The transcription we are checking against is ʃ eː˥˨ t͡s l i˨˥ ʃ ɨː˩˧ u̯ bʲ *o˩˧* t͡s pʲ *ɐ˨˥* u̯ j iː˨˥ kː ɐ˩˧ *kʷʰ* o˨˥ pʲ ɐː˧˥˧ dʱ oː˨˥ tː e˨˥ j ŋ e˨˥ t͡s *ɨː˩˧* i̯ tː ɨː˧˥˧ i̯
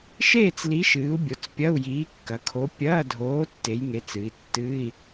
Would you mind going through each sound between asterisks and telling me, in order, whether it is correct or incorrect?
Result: correct, incorrect: ɐ˧˥˧, incorrect: kʰ, incorrect: ɨ˩˧

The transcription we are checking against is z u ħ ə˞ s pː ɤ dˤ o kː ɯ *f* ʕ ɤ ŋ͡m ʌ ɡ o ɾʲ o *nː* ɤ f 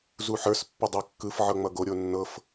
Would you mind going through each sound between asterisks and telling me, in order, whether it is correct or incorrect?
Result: correct, correct

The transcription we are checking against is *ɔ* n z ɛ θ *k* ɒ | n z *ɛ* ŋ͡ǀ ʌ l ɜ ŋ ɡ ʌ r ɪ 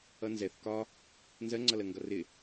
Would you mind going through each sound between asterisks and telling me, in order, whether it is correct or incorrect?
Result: incorrect: ʌ, correct, incorrect: ɜ

